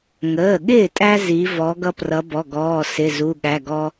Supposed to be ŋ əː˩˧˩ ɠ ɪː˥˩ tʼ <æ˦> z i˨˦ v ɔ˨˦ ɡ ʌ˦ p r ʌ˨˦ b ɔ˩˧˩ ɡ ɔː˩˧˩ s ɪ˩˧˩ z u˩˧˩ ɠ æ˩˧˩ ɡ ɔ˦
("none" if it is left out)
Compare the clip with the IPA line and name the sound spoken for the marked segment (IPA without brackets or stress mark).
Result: æ˦